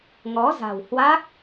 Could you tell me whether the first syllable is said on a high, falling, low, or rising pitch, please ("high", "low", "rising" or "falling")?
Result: rising